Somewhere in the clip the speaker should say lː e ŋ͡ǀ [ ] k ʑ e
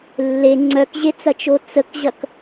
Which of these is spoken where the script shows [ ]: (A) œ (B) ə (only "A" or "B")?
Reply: A